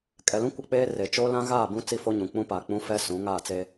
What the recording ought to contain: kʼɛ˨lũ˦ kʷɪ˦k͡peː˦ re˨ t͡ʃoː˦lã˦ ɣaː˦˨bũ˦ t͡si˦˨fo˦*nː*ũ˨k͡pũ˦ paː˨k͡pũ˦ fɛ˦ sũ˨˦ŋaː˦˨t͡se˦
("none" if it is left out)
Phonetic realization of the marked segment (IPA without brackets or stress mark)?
ɲ